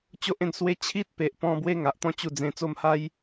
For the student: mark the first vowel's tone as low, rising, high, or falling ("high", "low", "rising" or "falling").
high